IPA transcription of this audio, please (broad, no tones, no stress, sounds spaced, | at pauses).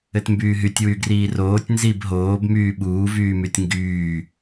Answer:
ɘ t m b yː ɦ y tʲ w y ɡ r iː r oː tʲ n z i b ɦ oː b m yː ɓ uː v yː m y tʲ ŋ ɡ yː